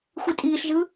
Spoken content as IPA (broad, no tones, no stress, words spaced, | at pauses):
xʷitʼiːɬʒɯ